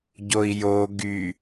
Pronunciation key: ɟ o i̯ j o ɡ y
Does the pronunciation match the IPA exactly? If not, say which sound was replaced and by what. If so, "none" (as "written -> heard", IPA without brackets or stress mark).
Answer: none